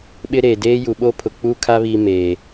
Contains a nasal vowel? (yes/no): no